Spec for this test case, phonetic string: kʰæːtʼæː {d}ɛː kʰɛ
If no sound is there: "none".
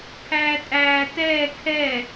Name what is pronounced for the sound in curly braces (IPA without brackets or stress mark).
t